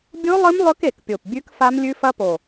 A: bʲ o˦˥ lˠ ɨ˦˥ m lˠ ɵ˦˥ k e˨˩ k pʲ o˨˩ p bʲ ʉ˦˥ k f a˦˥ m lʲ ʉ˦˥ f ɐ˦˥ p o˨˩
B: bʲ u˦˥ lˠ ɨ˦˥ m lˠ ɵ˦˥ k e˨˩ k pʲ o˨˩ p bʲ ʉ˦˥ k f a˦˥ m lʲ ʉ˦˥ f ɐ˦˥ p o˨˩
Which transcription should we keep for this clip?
A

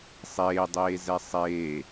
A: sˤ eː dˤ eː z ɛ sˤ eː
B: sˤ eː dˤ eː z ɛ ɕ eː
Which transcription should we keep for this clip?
A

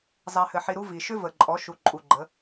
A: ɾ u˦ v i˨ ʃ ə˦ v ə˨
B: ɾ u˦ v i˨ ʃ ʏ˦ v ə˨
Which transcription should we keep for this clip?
B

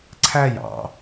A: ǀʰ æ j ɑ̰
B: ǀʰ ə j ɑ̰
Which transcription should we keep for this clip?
A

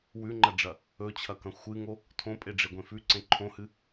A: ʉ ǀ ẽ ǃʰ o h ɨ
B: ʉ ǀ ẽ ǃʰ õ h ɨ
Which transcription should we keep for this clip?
B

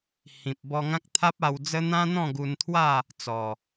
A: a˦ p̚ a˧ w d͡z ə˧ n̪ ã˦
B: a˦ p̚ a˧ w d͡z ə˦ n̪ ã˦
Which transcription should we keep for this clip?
B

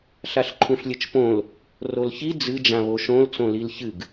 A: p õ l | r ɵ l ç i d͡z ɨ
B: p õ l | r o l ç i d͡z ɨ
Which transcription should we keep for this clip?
B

